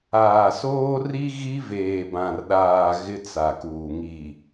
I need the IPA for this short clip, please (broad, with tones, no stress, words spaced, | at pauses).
aː˨soː˦ri˦ ɣi˦veː˨bã˨rɗaː˨ ɣɪ˦t͡sa˨kuː˨ ŋi˨